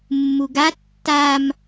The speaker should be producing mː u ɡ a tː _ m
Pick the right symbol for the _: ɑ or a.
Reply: a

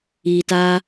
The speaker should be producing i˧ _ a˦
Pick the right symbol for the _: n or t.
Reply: t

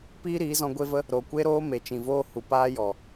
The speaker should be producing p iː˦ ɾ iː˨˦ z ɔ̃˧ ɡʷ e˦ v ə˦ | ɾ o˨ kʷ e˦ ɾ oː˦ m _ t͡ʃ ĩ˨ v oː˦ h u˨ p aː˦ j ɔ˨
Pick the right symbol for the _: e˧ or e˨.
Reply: e˨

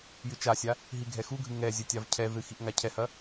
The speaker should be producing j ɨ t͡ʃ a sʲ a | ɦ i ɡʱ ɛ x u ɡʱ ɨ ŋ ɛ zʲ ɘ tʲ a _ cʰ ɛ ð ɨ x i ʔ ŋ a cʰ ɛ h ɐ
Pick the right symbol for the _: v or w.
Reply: v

